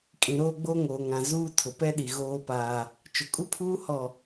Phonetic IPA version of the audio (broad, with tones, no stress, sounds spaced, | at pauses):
kʼ ĩ˨ ɾ oː˦ ɡ͡b o˦ ŋ oː˨ ŋ ã˨ z uː˦ tʰ ʊ˨ p ɛ˦ ɗ i˨ ɣ oː˦ p aː˦ | t͡ʃ ʊ˨ kʼ u˦ pʰ uː˦ h ɔ˦˨